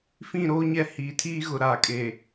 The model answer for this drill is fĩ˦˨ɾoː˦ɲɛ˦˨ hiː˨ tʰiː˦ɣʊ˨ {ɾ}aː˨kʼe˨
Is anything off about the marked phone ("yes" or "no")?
no